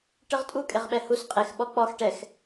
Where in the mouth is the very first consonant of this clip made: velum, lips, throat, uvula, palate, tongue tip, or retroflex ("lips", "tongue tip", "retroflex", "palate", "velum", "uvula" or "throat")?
retroflex